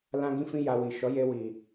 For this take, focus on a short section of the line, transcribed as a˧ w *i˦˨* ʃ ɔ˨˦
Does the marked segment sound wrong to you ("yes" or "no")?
yes